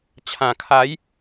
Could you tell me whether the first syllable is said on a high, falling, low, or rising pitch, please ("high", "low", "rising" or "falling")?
low